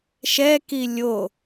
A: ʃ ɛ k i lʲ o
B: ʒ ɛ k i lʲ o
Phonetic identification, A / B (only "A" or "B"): A